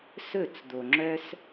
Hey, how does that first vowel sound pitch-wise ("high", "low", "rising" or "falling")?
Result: falling